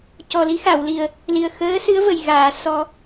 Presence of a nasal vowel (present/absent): absent